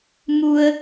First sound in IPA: m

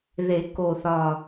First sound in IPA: ð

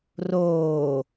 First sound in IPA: r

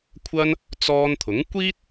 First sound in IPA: kʷʰ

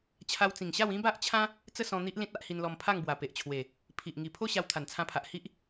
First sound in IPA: t͡ɕʰ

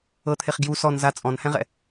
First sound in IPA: ɤ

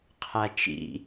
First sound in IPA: qʰ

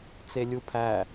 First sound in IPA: t͡s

